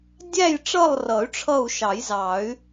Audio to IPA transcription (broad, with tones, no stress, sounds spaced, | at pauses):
dʲ æ˦˨ j ʈ͡ʂ ʌ˦˨ lˠ r ʌ˨˩˦ y̯ ʈ͡ʂʰ ʌ˦˨ u̯ ʃ ɑ˨˩˦ j z ɑ˨˩˦ y̯